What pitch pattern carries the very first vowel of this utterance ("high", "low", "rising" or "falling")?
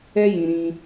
high